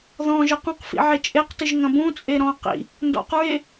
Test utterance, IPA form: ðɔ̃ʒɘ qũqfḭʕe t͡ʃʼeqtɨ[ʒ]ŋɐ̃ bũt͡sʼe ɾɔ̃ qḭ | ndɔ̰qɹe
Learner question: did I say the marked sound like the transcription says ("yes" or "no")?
yes